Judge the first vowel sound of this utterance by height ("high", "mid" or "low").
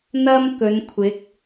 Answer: low